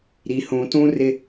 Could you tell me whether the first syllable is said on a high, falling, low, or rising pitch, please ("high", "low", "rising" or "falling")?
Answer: low